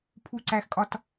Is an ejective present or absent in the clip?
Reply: present